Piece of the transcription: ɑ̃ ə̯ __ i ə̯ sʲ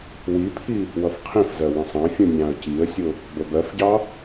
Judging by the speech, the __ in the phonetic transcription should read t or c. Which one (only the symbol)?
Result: c